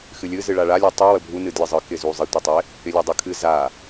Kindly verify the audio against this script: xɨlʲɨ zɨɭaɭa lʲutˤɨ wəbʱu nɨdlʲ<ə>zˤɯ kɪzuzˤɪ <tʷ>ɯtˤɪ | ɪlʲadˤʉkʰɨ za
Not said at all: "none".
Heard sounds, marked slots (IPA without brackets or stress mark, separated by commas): ə, tʷ